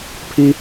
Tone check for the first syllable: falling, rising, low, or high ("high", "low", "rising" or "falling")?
high